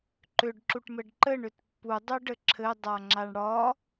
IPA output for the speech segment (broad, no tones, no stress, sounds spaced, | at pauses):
ǃ ʏ ɖ ǁ u ʈ m ɘ ɖ ǃ ɘ ɳ ʏ t pː u dˤ u ɖ ɘ ǁʰ ɘ dˤ a ŋ͡ǁ a ɳ ɽ ɒ